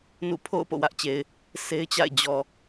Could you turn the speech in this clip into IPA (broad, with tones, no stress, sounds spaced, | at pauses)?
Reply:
n ṵ˦˨ pʰ o̰˦˨ ʊ̯ p o̰˦˨ w ä˦ ʔ t͡ɕ e˨ ɪ̯ | s e˦ ɪ̯ t͡ɕ a̰˦˨ ɪ̯ d͡ʑ ɔ˨